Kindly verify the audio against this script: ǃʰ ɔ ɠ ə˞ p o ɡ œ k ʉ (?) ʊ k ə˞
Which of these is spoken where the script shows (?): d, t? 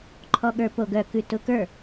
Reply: t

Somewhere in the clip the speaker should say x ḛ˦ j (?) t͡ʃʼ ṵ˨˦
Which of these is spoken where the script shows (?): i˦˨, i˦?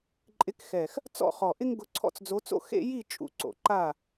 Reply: i˦˨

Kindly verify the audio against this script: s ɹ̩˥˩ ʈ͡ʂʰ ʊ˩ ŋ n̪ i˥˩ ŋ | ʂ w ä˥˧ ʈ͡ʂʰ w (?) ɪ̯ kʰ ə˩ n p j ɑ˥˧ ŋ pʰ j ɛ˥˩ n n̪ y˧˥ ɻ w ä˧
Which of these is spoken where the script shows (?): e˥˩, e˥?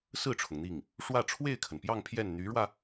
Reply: e˥˩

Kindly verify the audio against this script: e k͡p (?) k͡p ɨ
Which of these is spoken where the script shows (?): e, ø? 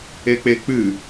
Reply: e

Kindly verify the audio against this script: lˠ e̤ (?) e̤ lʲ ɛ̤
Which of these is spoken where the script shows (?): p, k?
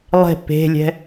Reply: p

